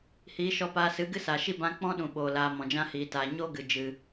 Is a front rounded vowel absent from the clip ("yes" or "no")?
yes